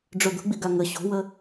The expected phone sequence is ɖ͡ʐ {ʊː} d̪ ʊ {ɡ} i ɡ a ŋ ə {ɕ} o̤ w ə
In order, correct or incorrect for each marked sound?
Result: incorrect: ʊ, incorrect: ɡ͡b, correct

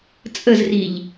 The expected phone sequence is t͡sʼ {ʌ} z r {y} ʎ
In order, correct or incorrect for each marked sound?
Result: incorrect: ə, incorrect: i

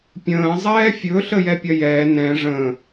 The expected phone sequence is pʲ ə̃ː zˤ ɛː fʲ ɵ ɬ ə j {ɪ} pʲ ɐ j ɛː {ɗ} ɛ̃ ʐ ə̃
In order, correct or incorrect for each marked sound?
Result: incorrect: ɛ, incorrect: n

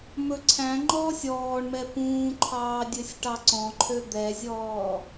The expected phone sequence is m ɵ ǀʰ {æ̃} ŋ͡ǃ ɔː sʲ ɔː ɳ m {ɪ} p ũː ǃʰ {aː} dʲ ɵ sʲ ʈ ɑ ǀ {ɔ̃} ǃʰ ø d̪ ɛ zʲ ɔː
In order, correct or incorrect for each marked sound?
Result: correct, incorrect: ɛ, incorrect: ɑː, correct

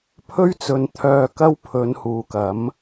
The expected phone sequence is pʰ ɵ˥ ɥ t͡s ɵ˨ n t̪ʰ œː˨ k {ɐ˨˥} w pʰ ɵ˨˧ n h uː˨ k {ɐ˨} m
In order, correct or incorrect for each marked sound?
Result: incorrect: ɐ˧, incorrect: ɐ˨˥

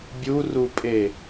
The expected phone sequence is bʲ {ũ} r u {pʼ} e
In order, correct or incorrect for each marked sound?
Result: incorrect: u, correct

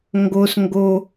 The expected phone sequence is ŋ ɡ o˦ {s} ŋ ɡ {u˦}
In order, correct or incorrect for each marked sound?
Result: correct, incorrect: o˦

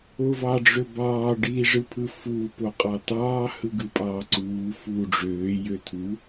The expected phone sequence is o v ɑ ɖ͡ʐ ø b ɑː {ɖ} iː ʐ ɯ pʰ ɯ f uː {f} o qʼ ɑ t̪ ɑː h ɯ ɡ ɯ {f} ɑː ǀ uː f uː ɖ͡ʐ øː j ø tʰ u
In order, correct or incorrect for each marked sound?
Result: correct, incorrect: p, incorrect: pʼ

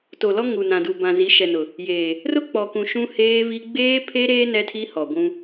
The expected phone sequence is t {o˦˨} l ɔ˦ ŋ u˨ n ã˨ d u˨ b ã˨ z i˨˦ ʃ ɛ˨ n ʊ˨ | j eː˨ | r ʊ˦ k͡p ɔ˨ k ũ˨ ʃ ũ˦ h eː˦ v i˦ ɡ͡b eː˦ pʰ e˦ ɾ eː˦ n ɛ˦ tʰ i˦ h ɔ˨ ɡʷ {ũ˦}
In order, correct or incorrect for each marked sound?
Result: incorrect: o˨, correct

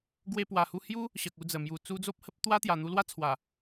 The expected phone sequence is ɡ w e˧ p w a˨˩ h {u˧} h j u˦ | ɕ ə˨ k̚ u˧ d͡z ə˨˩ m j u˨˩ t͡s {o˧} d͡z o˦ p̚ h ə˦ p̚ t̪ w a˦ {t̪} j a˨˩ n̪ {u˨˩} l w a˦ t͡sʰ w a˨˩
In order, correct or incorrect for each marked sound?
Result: correct, incorrect: u˧, correct, incorrect: u˧

